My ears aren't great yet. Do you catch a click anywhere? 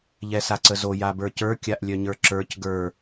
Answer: yes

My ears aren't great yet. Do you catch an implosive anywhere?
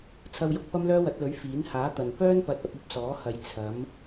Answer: no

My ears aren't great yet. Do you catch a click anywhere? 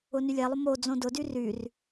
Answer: no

